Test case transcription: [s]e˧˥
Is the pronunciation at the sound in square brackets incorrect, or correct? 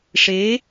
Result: incorrect